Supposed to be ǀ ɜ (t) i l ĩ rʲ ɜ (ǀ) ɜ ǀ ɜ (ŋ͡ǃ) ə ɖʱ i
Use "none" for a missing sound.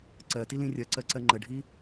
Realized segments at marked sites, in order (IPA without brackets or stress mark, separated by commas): t, ǀ, ŋ͡ǃ